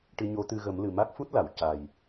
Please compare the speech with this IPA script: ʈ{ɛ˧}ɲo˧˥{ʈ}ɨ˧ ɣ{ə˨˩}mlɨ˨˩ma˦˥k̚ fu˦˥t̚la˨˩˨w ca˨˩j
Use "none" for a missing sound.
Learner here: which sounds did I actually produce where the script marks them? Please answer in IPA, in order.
ɨ˧, t̪, ə˨˩˦

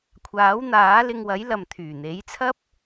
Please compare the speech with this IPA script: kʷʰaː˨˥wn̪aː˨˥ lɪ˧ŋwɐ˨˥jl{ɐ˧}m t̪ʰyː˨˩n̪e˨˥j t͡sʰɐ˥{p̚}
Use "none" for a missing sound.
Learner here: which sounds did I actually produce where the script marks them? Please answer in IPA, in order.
ɐ˨, p̚

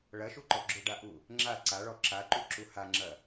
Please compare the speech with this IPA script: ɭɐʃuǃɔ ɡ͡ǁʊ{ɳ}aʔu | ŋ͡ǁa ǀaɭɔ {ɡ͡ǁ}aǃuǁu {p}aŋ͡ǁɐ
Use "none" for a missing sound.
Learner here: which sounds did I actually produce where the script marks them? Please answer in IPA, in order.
ɖ, ǁ, h

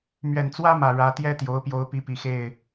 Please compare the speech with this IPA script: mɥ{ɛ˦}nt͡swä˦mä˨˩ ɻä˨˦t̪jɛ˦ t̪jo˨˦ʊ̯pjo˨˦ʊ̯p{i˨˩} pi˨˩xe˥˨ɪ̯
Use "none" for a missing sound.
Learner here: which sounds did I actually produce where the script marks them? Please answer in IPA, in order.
ɛ˨˩, i˨˦

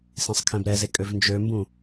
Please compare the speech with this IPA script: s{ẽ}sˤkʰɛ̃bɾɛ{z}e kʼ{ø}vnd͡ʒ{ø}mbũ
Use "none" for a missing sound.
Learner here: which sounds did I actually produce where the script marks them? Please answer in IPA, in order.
ẽ, z, ø, ø

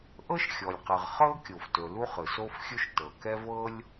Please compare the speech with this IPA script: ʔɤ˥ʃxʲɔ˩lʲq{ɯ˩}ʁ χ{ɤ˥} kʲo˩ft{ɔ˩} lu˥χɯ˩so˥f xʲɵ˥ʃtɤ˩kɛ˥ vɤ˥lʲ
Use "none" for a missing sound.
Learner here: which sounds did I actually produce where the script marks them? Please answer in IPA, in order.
ɯ˩, ɤ˥, ɵ˩

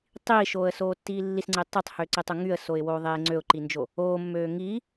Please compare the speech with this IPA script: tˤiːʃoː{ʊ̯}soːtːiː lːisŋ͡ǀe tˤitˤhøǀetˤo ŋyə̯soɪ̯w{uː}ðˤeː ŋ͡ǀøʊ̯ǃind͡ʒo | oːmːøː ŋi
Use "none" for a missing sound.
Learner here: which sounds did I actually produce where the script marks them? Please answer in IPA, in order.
ə̯, oː

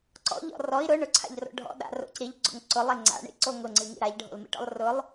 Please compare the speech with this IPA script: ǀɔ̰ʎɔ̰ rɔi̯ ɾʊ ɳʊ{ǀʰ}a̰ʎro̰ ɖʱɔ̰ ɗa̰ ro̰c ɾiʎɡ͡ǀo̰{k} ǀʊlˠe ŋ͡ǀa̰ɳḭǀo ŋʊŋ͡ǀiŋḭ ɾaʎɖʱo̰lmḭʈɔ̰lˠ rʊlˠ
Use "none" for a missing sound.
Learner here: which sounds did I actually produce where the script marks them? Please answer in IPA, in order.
ǀʰ, ŋ

